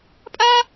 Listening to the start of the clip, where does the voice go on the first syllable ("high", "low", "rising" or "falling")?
high